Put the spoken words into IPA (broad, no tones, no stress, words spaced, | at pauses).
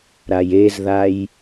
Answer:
ɾajezðaj